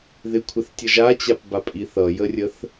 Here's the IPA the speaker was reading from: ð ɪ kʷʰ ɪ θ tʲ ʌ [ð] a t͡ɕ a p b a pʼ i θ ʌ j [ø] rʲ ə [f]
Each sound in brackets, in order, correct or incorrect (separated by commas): incorrect, incorrect, incorrect